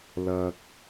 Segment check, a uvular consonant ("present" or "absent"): absent